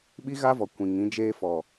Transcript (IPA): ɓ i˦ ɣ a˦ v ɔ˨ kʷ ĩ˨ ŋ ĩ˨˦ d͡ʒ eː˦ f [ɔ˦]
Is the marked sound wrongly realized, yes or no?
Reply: yes